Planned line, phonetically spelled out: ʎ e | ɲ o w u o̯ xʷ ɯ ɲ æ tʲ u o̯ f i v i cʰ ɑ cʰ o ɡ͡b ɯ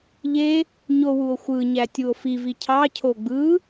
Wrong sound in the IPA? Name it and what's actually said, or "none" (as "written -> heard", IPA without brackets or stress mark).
none